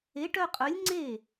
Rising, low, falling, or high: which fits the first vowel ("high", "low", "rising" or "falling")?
rising